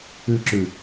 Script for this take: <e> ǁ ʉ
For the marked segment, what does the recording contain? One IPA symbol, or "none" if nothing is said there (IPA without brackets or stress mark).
ɨ